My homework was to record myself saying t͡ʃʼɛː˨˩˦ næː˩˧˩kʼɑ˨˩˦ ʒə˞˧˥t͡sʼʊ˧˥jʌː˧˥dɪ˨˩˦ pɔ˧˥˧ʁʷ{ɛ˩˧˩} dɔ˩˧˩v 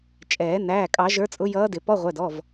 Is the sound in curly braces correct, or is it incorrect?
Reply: correct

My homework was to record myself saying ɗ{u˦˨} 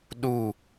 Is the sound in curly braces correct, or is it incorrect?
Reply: correct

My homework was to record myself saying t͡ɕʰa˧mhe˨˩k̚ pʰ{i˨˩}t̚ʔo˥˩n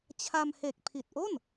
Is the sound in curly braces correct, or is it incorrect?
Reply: correct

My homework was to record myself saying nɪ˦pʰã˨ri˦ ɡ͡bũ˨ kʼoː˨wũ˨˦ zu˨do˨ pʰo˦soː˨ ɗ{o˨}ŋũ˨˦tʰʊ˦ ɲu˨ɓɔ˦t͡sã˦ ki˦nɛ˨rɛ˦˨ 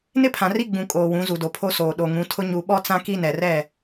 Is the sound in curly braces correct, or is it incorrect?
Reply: correct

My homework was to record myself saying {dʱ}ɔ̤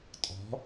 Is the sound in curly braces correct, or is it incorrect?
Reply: incorrect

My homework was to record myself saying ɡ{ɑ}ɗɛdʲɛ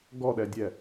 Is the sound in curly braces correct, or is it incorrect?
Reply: incorrect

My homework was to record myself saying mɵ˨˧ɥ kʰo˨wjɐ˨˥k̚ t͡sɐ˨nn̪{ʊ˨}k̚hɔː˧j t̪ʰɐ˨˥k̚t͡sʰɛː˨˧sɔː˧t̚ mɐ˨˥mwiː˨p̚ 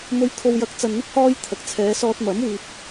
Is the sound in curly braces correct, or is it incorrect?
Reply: incorrect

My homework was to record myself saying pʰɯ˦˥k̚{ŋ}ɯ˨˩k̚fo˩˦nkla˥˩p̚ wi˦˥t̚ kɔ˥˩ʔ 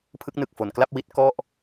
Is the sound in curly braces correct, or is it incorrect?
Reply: incorrect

